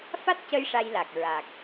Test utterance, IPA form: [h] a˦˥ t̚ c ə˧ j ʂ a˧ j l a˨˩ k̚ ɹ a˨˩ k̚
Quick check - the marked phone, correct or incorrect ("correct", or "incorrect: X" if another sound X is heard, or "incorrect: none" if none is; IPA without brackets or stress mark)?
incorrect: f